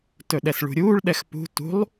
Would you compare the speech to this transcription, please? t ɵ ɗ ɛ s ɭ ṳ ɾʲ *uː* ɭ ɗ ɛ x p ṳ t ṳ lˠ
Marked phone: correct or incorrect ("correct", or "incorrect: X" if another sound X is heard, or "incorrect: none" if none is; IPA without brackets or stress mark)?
correct